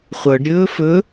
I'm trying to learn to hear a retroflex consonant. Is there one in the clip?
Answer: yes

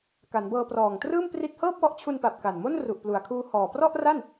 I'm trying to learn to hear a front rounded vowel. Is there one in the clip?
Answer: no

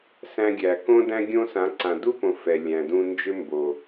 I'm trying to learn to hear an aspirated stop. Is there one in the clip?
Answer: no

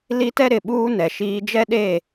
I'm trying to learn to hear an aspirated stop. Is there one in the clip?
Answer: no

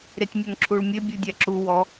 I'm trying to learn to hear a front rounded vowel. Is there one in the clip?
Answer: no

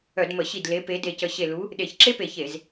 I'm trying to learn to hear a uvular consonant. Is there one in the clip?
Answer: no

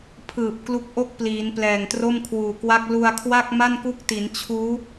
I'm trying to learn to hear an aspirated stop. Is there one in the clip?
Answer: yes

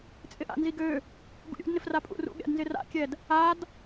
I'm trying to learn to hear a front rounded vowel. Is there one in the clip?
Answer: yes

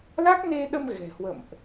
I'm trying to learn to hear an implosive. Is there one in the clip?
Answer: yes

